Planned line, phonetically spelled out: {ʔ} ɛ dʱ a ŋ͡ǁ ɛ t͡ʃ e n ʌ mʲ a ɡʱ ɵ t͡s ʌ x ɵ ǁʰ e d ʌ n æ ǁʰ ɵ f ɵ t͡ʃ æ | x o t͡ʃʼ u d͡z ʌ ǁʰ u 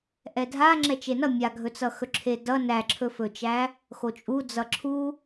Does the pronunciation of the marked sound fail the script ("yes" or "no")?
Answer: no